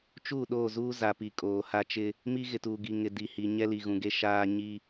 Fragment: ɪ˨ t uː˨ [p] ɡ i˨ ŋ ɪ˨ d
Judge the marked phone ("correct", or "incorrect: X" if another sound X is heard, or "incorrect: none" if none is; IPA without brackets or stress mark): incorrect: none